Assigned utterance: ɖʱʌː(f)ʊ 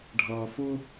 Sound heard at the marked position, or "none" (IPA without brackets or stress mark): f